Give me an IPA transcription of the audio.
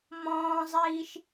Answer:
m ɔ̃ː zˤ iː ʃ

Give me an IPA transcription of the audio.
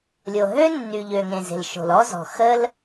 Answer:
lʲ o˨ ɦ ø˥ nː y˨ ʎ ø˨ ŋ ẽ˨ z e̤˨ l ʃ o̤˨ l ɔ˥ z ɔ̤˨ x ə˥ l

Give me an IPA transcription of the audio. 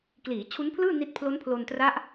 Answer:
k l iː˩˦ t͡ɕʰ u˦˥ n pʰ l ɯː˥˩ n i˦˥ t̚ pʰ l o˦˥ n pʰ l o˧ n t r a˦˥ ʔ

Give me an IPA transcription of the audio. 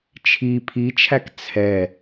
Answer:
t͡ʃʰ i pʰ i t͡ʃʰ æ k t͡sʰ ɛ

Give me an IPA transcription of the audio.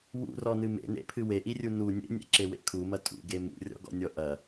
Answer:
w ṵ r ɔ n ɨ m ḛ n ḛ pʰ ɨ w e ʔ i rʲ u n u nʲ ḛ nʲ ḛ ǁ e w ḛ kʰ u m ɐ tʼ ṵ ɡ e m ṵ rʲ ɔ̰ ɡ ɔ̰ nʲ ɔ ʔ ɐ

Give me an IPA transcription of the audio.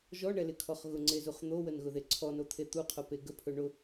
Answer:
ʒ ɔ ɳ ɛ l ɪ kʰ ɔ χ ɣ ʊ ŋ͡ǀ e z u χ n̪ o w ə n ɣ ʊ ð e ǀʰ ɔ n o t̪ʰ e t̪ u qʰ o p e ɡ ə pʰ ɵ ɳ ʊ

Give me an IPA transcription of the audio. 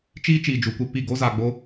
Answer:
t͡ʃ iː˦ t͡ʃ iː˧ d͡ʒ u˨˦ kʷ e˧ p i˦˨ ɡ o˦ z aː˧ ɡ͡b o˦

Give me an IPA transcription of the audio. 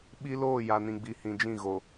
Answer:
ɓ i˦ l oː˦˨ j a˨ n ĩ˨ ɡ͡b i˨ h ĩ˨ d͡ʒ ĩ˦˨ ɣ o˨

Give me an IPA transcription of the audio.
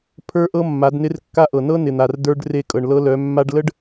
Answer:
pʰ ə˞˦ ʔ ɤ˦ mː a˨˦ d n ɪ˦ r kː a˦ ʔ ɤ˨ n ɤ˦ n ɪ˨ n̪ a˨ r d ə˞˦ ɖ r e˦˨ kʼ ɤ˨ ɳ l ɤ˦ l œ˨˦ mː a˦ ɖ l ə˦ ɖ

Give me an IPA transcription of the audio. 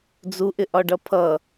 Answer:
d͡z u ʔ ɪ ʔ ɒ ɖ ʌ pʰ ʌ

